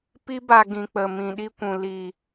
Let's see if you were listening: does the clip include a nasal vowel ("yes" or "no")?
yes